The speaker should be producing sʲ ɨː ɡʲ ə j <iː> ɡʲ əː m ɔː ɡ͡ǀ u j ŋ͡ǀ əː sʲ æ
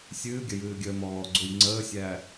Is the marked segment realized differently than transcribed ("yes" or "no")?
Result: yes